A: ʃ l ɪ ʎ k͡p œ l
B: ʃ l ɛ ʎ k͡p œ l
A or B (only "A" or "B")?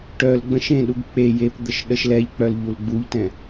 B